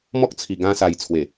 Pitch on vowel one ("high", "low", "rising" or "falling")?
high